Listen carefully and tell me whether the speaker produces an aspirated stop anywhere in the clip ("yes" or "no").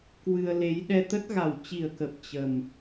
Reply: no